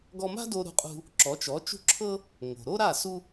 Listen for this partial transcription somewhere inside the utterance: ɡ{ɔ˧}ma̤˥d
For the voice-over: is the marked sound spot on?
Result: yes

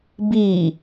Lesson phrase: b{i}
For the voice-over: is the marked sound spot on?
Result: no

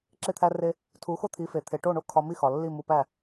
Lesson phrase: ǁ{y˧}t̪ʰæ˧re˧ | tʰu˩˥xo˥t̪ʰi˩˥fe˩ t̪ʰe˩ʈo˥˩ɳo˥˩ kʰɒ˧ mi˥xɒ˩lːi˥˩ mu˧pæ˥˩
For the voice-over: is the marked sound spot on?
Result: no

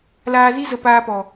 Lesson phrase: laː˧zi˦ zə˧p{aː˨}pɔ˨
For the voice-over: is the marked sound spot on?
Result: no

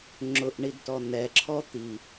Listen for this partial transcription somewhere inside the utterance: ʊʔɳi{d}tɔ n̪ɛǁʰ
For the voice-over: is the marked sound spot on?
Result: yes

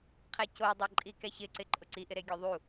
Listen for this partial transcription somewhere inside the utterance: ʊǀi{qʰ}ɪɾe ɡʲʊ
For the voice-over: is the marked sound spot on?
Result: no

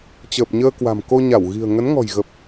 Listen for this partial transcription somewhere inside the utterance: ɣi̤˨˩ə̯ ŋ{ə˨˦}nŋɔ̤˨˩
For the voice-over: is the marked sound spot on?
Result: yes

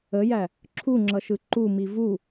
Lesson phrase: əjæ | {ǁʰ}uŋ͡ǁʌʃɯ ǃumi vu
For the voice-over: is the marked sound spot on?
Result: yes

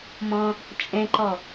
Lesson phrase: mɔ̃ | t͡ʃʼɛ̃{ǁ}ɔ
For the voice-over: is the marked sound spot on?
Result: no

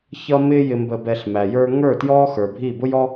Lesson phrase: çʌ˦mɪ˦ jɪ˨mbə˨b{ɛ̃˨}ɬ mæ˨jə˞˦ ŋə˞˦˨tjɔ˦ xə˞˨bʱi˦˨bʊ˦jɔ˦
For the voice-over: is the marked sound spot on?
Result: no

